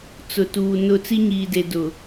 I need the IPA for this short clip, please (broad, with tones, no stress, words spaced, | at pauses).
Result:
t͡sʊ˨tuː˨nʊ˦˨ t͡si˦ɲiː˨de˨ dʊ˨